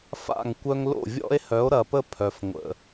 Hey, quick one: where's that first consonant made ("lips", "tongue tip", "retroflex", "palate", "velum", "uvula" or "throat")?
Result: lips